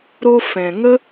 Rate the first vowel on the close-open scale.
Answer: mid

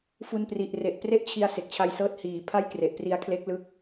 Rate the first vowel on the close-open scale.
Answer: close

